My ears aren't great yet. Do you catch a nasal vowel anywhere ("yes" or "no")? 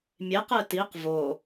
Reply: no